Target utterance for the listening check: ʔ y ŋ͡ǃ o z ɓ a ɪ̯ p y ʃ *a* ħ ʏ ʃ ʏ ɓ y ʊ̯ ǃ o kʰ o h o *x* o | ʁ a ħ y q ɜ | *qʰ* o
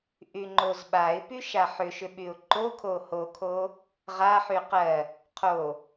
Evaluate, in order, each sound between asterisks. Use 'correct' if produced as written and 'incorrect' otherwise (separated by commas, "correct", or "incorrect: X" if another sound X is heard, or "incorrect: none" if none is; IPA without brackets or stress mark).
correct, incorrect: kʰ, correct